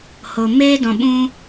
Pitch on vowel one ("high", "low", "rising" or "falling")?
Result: low